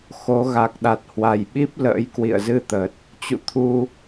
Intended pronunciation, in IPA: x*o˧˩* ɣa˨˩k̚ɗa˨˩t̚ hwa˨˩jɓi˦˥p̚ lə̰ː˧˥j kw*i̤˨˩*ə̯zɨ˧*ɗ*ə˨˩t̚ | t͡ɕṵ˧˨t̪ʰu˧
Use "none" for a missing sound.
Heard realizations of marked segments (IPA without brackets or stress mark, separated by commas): o˨˦, ḭ˧˨, t̪